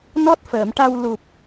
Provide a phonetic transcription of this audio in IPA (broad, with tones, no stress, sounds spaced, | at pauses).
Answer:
n ɔ˦˥ t̚ f əː˨˩˨ m ʈ a˧ w l u˨˩ p̚